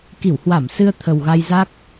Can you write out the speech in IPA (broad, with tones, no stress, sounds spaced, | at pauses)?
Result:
k i˧˩ w h w a˧˩ m s ɨ˧ ə̯ t̪ʰ ə˨˩ w ɣ a˧ j z a˦˥ k̚